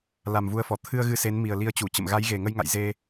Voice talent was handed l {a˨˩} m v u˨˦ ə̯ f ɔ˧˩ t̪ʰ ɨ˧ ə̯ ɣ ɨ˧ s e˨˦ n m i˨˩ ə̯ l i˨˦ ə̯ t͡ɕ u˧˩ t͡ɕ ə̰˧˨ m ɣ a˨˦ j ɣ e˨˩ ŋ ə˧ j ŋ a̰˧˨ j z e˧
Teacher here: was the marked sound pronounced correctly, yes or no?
yes